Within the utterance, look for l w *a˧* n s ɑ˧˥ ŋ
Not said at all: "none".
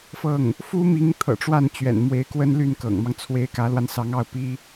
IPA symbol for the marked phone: a˧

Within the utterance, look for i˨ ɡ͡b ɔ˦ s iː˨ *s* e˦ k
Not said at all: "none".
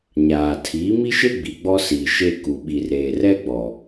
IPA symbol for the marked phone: ʃ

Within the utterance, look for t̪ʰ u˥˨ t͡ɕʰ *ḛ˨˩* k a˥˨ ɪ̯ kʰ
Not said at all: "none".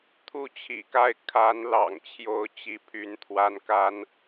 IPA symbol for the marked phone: ḭ˨˩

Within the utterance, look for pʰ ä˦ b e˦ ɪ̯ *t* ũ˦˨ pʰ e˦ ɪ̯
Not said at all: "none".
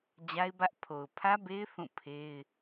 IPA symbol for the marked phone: θ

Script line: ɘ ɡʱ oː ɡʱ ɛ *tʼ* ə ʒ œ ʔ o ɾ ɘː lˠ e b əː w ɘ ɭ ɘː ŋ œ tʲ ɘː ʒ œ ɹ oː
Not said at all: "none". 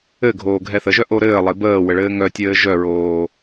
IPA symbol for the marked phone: θ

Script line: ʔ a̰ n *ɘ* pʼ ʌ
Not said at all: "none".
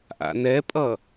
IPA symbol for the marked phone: ɛ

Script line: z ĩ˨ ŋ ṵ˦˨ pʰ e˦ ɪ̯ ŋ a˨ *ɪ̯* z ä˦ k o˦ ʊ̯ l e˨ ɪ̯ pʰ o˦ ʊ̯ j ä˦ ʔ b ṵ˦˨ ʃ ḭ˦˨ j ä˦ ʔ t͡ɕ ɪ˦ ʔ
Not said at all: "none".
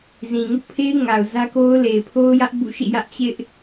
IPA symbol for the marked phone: ʊ̯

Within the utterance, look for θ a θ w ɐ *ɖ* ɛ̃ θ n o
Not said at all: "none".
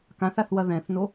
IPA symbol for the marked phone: ð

